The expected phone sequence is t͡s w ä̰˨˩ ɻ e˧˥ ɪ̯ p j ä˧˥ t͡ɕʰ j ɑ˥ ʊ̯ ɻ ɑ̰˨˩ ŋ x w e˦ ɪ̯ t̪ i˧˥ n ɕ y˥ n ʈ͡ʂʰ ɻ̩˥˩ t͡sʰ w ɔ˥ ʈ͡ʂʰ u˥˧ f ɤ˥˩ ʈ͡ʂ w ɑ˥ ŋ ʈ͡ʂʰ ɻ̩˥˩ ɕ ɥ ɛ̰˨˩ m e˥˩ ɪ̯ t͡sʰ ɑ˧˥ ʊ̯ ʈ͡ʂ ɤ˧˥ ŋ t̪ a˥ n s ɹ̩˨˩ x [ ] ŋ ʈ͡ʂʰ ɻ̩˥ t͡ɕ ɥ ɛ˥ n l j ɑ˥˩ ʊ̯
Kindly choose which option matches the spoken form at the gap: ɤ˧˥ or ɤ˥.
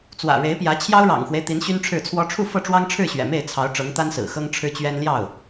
ɤ˥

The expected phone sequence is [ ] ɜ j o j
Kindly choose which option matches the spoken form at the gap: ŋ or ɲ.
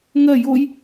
ŋ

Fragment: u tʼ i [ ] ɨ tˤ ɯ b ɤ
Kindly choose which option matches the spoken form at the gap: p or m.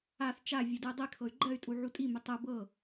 m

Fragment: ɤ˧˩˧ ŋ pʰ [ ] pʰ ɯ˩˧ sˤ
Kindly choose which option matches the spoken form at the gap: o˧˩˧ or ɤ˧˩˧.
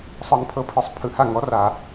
ɤ˧˩˧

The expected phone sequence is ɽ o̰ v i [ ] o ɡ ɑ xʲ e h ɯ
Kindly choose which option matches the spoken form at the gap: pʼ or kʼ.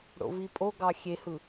pʼ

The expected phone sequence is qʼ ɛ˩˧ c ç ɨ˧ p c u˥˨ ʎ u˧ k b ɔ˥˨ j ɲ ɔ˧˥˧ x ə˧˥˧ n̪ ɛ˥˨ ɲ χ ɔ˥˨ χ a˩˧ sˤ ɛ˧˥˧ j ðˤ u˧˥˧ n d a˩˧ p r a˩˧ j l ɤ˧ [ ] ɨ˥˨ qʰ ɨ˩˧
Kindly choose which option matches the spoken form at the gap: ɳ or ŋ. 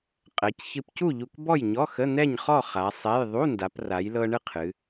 ɳ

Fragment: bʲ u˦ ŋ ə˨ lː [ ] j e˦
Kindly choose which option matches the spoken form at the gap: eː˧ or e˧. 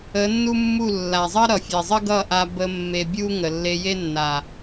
e˧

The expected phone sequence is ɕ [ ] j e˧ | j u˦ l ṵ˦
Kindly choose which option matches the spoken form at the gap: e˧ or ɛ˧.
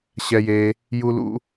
ɛ˧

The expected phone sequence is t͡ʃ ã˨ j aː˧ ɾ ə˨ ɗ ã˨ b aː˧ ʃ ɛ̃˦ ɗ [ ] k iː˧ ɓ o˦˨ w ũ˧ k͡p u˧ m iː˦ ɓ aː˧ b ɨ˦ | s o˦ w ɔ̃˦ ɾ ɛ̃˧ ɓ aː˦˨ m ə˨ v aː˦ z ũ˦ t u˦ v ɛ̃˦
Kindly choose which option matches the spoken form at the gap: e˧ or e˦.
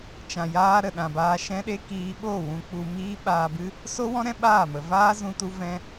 e˦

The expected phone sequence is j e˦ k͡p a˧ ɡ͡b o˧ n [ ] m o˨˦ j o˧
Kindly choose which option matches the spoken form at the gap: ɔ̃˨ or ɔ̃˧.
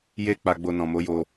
ɔ̃˨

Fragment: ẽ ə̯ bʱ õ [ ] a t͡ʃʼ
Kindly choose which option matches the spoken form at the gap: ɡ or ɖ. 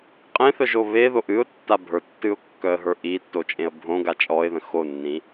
ɡ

